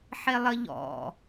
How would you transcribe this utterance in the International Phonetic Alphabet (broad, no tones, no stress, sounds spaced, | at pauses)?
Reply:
ħ e lˠ ə ʎ ɔ̰